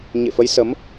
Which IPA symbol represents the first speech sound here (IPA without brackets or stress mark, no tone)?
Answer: ɲ